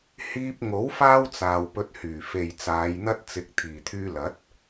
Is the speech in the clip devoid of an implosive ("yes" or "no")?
yes